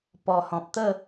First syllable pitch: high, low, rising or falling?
low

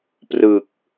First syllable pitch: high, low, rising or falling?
low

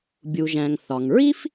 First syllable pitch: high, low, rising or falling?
low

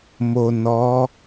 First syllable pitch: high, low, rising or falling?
low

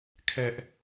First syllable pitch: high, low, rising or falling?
high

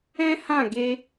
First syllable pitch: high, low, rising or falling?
high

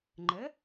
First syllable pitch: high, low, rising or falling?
rising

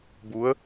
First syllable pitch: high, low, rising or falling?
rising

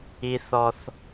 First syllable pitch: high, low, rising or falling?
high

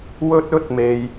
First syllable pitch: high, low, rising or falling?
high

